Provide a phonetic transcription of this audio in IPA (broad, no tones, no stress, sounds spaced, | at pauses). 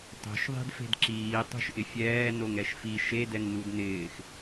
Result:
tˤ o̤ ʃ ðˤ e̤ d f e̤ d ǁ iː tˤ o̤ ʃ ʔ ɪ fʲ ɛː n o ŋ ɛ ʃ f i ʃ e d ɛ ŋ n u d n ɪː x